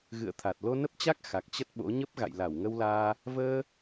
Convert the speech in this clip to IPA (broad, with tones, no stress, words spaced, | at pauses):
ɣɨ̰˧˨ə̯t̪ʰa˨˩t̚ lo˧nə˦˥p̚t͡ɕa˦˥k̚ xa˨˩k̚t͡ɕə˦˥t̚ɓo̰˧˥ ɲə˦˥p̚ ɣa̰˧˨jla˧˩wŋə˧wlaː˧ | vəː˧